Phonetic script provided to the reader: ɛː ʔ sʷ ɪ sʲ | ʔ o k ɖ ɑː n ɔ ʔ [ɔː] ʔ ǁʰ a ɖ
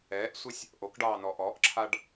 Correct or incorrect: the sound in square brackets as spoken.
correct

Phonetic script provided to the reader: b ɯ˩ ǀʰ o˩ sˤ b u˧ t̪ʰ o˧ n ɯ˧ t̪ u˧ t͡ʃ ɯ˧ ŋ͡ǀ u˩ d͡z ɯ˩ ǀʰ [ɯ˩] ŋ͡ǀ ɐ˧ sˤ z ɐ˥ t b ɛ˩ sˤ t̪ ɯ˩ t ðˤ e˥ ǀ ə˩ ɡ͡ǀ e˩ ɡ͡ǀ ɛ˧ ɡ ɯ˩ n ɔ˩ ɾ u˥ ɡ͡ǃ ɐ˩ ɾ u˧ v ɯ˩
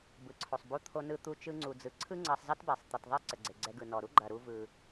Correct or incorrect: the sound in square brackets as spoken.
incorrect: ɯ˥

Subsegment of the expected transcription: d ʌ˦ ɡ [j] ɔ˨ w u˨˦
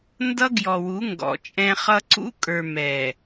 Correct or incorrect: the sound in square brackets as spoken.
correct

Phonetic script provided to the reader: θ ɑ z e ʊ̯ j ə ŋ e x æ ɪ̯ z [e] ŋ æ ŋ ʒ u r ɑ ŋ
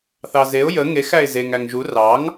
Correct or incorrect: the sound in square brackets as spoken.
correct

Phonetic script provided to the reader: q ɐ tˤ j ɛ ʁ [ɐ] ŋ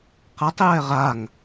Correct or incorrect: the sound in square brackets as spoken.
incorrect: a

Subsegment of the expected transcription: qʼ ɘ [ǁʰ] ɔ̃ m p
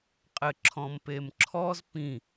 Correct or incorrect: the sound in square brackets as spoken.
correct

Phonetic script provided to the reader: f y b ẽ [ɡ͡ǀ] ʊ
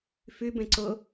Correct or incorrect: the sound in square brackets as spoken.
incorrect: ǀ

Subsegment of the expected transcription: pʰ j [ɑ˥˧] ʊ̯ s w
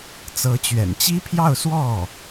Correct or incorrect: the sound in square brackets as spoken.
correct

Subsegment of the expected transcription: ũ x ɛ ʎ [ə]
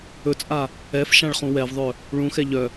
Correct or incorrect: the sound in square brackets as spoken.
incorrect: œ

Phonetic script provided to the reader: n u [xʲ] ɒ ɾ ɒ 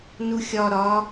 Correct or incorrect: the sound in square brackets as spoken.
correct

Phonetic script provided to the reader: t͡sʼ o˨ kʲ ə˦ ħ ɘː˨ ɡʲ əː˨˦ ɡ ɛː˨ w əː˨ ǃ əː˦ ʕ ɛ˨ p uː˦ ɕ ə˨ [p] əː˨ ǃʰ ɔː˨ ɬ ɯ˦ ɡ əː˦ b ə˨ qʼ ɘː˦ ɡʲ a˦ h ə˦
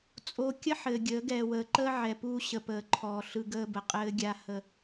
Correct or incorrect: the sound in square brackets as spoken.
correct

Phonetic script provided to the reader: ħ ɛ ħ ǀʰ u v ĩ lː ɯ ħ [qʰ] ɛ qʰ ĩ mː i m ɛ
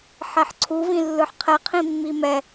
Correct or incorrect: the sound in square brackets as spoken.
correct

